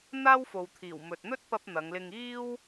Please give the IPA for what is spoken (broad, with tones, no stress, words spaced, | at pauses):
n̪aː˥wfo˨wt̪ʰiː˨˩w mɵ˨t̚n̪ɵ˥t̚pɐ˧p̚ n̪ɐ˨˧ŋlɪ˧ŋ iː˥w